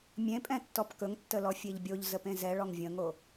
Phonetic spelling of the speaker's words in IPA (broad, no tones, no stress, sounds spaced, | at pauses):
mʲ ẽ pʼ ɛ̃ tː ɔ p k ɵ ŋ tː ə l ɔ fʲ e ʎ bʲ o ʎ z ə p ẽ z ɛ ɭ ɔ ŋ vʲ ə̃ ŋ o